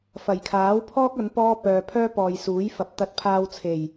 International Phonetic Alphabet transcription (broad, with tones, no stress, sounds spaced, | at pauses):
f ɐ˨˩ j kʰ aː˨˥ w pʰ ɔː˥ k̚ ɐ˨˥ n p ɔː˥ p œː˨ pʰ œː˥ p ɔː˨ j s uː˨˥ j f ɐ˨ p̚ t̪ ɐ˧ t̚ pʰ aː˧ w t͡sʰ e˨˩ j